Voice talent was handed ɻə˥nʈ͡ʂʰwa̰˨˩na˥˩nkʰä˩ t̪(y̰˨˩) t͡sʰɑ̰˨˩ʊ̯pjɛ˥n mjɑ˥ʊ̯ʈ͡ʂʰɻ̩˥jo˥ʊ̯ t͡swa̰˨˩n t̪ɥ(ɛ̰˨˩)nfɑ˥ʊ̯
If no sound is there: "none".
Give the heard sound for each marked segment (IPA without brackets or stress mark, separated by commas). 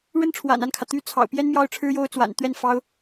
y˥, ɛ˥˩